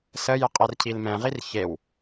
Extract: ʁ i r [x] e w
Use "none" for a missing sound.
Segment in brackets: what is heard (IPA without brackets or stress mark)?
ç